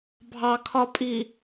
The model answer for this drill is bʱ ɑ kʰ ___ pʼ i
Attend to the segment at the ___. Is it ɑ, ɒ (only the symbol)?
ɒ